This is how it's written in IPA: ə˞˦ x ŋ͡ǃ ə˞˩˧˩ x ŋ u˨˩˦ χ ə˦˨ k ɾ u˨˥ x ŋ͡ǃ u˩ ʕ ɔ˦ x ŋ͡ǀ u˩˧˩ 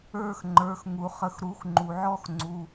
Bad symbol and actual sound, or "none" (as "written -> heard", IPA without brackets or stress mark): k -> x